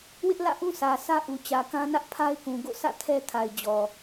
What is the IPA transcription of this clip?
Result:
w ɪ˦ ʔ l ä̰˦˨ ʔ ũ˦ s ä˨ sʰ ä˦ ʔ u˨ t͡ɕ ä˨ k ã˦ n ä˦ ʔ pʰ a˦ ɪ̯ k ũ˨ ɡ o̰˦˨ s ä̰˦˨ tʰ ɛ˦ tʰ a˨ ɪ̯ d͡ʑ ɔ˨

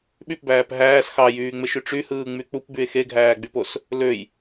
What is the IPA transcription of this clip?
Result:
ɓ y p b æː p ɦ æː s x ɑ j yː ŋ͡m e ʃ y ʈ͡ʂ y h ɯː ŋ͡m y k͡p u p b y e̯ x e ɡʱ æː ɡ͡b y p o s | l ø j

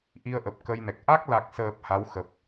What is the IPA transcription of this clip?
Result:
ʔ i˧ ə̯ ʔ ə˨˩ p̚ k ə˧ j n ɛ˨˩ k̚ ʔ a˦˥ k̚ l a˨˩ k̚ s əː˨˩ p̚ h a˨˦ w x ə˨˩ p̚

